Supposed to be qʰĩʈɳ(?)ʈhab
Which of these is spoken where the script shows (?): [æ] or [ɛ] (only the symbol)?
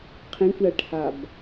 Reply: æ